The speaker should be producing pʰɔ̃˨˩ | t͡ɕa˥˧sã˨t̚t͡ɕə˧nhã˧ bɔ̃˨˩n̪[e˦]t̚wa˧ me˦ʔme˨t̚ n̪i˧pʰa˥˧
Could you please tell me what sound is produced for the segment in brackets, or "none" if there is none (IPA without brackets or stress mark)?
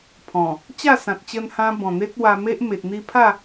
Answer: e˦